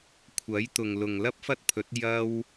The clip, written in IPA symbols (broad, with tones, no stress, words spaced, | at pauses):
kʷʰɐ˨˥jt̪ʊ˨ŋlʊ˨ŋ lɐ˥p̚fɐ˥t̚pʰɵ˨˥t̚ jɐ˥w